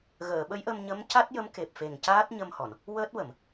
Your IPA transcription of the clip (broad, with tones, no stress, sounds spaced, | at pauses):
ɣ əː˨˩˨ ɓ ə˧˥ j ʔ ə˧ m ɲ ə˧˥ m c a˦˥ t̚ j ə˧˥ m k e˨˩ p̚ f e˨˩ ŋ c aː˦˥ t̚ ɲ ə˧ m h ɔ˨˩˨ n | w əː˦˥ t̚ w ə˨˩˨ m